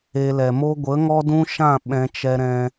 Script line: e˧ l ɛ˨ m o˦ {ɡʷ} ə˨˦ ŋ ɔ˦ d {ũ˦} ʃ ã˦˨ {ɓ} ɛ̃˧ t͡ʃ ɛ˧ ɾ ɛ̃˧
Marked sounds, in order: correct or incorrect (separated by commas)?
correct, correct, correct